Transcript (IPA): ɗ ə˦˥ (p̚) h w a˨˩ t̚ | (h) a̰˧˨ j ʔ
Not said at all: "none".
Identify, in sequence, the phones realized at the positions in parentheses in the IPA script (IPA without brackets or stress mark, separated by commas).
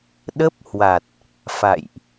p̚, f